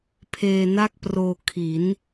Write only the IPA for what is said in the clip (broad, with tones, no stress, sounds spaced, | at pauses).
pʰ eː˧ n a˥˩ k̚ p r oː˧ kʰ i˩˦ n